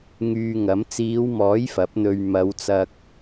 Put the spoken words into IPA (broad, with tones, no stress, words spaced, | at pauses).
ŋyː˧ŋɐ˨˥m t͡siː˨˧wmɔː˨˥j fɐ˨˥p̚n̪ɵ˧ɥ mɐ˨˧wt͡sɐ˧k̚